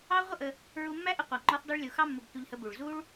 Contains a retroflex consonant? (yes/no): yes